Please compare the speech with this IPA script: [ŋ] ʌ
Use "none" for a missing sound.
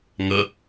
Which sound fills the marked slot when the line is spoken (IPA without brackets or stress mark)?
ŋ